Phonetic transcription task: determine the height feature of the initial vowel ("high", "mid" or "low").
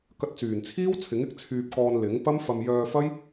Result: low